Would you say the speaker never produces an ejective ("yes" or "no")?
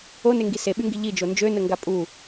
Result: no